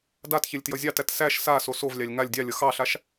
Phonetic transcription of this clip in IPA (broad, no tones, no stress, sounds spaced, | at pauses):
d a t ç e lʲ t j ʌ zʲ ɑ t æ t s æ ʃ s a s o s o v lʲ ɑ lʲ ŋ a lʲ dʲ ɑ lʲ ʌ x ɑ ɬ a ʃ